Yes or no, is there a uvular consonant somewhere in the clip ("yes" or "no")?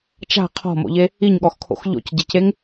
yes